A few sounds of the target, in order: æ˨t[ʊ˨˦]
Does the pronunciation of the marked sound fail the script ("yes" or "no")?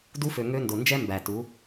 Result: yes